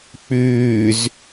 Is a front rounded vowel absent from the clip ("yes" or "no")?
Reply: no